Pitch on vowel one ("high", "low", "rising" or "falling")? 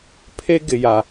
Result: high